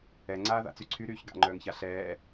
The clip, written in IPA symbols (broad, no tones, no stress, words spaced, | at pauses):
ɛŋ͡ǀaːða̰t͡sy ǀʰyɾyːç ɡa̰ŋ͡ǃœːŋça ɬɛː